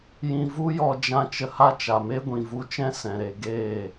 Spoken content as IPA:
j ĩ˧ v u˦ j ɔ˧ d͡ʒ ã˦ t͡ʃ ə˧ h a˦ t͡ʃ a˨ m e˦ ɡʷ ĩ˨ v u˧ t͡ʃ ɛ̃˦ s ɛ̃˨ ɾ e˨ ɡ eː˦˨

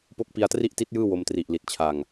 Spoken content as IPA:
p o˦˥ k̚ p i˧ a̯ t r i˥˩ ʔ t i˦˥ t̚ j ɯː˥˩ w o˧ m t r i˨˩ ʔ l i˨˩ t̚ t͡ɕʰ a˧ ŋ

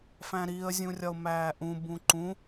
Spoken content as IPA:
f æ̃ ɾ i ə̯ zʲ ũ rʲ ɒ ʊ̯ m æː ʔ ũ b ũ ǃ ũ

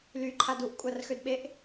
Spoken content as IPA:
l y ǃʰ a d u ʔ kʷʼ a r x ø d ɓ e ʔ

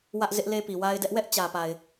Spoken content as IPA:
w ä˦ ʔ z ɪ˦ ʔ l e˦ p i˨ w a˦ ɪ̯ d ɛ˦ ʔ w ɛ˦ ʔ t͡ɕ ä˨ p a˨ ɪ̯

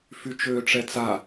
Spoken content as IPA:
f y t͡ʃ øː ʈ͡ʂ ɛ t͡s a

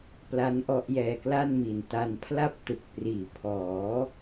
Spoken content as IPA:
p l a˦˥ n ʔ ɔ˦˥ ʔ j ɛː˧ k l a˥˩ n m i˨˩ n t a˧ n pʰ l a˥˩ p̚ t ɯ˨˩ k̚ p r iː˩˦ pʰ ɔː˩˦

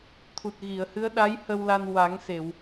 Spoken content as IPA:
t̪ʰ u˨˩ t̚ ɣ i˨˩˨ ə̯ h ɨ˧˥ ə̯ ɗ a˧˥ j h ə˧ w l a˧ n w a˨˩˦ ŋ s e˨˩˨ w

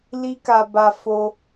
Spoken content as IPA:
l i˦ k a˧ b a˧ f o˦

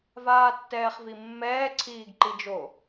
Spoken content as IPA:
v aː tː ɛː χ v i mː ɛː ǀʰ iː ɡ ǃ i d͡ʒ o

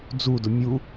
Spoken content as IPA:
d͡z u d ʊ mʲ u

